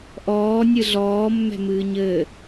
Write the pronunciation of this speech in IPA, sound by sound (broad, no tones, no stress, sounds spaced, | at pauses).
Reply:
ʔ ɔː nʲ ɨ ɮ ɔː mː ɛ̤ m ɨː ɲ ɘː